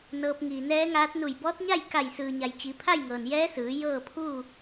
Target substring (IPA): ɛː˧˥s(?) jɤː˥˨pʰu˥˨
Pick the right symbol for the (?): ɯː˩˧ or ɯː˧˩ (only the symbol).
ɯː˩˧